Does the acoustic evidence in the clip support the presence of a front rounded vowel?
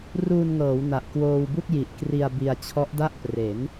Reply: no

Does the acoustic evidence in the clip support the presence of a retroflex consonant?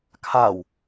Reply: no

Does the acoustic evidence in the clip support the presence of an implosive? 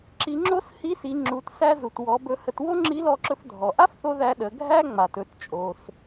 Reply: yes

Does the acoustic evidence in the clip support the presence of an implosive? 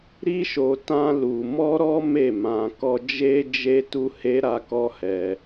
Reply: no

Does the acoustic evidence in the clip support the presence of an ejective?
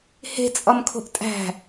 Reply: yes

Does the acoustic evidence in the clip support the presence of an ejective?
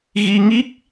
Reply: no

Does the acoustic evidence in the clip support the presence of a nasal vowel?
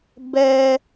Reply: no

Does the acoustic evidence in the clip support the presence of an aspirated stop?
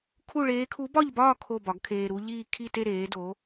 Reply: yes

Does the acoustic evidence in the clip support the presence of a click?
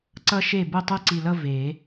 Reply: yes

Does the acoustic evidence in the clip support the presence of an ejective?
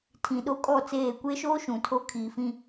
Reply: yes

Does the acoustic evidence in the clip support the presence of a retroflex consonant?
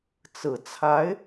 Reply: no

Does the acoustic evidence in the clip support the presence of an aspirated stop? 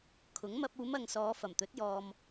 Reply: yes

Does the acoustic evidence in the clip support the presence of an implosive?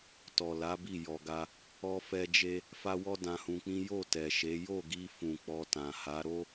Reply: no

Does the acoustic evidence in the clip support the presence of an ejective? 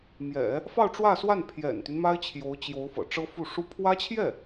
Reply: no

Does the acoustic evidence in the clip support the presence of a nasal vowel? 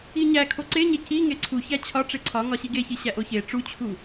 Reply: no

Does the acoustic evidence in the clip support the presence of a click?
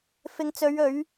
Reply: no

